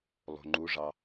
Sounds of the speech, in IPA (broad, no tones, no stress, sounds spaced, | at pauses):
lˠ o̤ ŋ͡ǃ u ʐ ɑ